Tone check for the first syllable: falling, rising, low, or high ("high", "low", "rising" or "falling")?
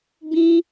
high